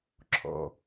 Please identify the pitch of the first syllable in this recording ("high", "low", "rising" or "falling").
low